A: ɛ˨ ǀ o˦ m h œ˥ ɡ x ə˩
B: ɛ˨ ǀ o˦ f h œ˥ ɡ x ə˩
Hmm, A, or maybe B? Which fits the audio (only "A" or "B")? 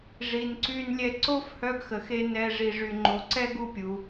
B